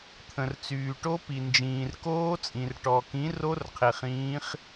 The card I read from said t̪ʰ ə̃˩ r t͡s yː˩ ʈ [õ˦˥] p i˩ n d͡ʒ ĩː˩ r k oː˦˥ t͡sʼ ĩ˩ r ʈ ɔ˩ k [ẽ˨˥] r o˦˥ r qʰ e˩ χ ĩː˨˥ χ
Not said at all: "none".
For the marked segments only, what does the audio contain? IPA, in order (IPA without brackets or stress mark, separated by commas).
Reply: o˦˥, ĩ˨˥